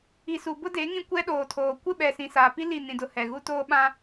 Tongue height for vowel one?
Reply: high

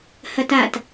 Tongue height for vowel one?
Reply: low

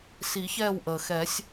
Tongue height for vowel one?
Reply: high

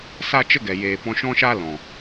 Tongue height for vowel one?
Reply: low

